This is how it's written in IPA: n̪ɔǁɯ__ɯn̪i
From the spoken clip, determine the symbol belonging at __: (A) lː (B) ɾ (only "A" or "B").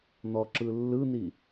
A